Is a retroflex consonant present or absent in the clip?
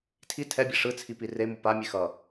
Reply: present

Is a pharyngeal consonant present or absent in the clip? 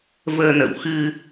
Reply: absent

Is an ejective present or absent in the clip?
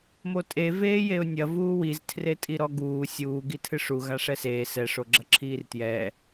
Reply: present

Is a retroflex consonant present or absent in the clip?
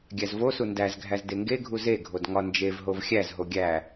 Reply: absent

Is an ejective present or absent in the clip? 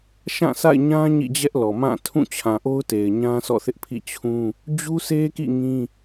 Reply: absent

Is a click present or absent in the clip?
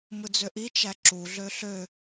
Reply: present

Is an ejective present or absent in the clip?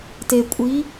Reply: present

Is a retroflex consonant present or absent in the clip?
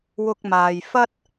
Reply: absent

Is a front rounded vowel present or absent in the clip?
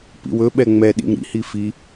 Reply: absent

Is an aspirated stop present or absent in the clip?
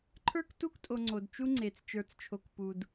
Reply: present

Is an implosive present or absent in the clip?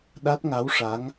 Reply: present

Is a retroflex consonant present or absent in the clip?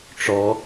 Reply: present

